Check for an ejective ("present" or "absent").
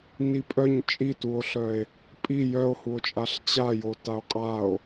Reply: present